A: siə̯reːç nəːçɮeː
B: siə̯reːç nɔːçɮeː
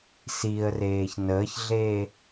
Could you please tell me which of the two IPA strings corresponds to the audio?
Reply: A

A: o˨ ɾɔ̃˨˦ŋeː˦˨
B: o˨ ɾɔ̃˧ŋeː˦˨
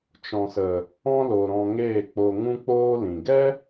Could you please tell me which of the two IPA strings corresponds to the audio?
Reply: B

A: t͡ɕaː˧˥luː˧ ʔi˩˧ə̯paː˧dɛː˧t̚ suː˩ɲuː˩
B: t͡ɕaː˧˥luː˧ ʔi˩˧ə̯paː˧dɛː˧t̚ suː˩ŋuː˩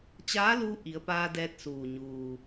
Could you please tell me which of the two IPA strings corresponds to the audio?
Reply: A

